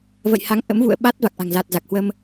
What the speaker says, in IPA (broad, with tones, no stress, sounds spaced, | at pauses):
v ə̰˧˨ j h a˨˦ ŋ ʔ ə̰˧˥ m v ṵ˧˨ ə̯ ɓ a˦˥ t̚ v a˨˩ k̚ ʔ a̤˨˩ ŋ z a˨˩ t̚ z a˨˩ k̚ h w ə˧ m